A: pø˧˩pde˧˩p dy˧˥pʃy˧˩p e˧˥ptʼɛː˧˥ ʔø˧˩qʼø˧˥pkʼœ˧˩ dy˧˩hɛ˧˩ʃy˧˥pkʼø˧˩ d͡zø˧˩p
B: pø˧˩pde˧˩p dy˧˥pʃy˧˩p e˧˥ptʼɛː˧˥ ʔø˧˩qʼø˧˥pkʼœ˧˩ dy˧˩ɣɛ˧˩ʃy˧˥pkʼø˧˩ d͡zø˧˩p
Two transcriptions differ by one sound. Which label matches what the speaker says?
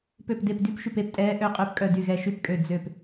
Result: B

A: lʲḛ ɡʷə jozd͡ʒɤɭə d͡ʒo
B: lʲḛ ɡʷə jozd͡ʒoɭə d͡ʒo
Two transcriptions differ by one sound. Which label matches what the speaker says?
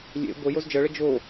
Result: A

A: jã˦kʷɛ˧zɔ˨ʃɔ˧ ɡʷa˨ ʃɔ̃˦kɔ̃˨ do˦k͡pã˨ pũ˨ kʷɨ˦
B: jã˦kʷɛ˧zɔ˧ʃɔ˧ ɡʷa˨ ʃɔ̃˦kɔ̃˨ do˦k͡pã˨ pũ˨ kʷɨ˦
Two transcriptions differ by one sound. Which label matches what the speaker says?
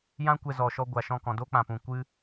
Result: A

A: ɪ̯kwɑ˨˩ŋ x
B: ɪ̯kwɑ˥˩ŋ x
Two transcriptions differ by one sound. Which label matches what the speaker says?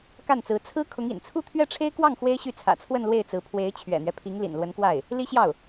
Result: B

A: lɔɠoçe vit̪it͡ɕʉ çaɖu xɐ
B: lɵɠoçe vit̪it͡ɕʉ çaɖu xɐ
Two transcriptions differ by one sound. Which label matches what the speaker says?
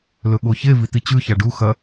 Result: B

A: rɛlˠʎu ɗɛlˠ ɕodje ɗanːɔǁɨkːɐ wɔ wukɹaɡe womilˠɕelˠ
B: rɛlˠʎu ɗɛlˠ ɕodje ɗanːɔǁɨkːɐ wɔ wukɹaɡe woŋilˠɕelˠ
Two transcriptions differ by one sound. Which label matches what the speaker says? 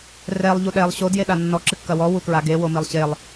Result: A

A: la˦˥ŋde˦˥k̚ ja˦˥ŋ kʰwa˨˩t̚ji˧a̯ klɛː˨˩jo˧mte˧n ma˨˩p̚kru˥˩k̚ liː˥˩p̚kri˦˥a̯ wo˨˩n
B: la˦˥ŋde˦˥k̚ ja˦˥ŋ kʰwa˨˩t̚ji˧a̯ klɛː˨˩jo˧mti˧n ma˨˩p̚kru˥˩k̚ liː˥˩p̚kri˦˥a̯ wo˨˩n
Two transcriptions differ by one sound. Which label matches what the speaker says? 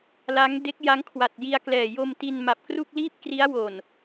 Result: B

